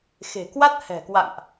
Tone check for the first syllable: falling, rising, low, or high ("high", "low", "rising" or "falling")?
low